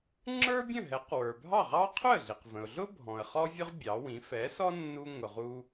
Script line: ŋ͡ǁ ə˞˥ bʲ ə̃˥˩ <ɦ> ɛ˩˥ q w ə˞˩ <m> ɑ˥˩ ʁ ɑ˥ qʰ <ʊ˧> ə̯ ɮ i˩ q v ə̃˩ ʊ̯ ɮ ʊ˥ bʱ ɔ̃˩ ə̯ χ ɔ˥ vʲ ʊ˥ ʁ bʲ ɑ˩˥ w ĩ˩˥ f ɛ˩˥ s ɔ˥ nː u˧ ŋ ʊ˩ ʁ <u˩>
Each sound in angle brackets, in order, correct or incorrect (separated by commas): correct, incorrect, incorrect, incorrect